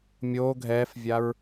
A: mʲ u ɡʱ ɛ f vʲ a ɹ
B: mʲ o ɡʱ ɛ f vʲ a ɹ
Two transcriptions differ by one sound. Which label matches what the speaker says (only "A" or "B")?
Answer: B